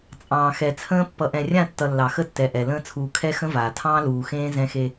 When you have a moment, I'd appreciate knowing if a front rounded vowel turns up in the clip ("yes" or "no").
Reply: no